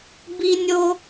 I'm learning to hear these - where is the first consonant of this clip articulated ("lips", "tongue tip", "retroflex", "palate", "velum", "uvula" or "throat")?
lips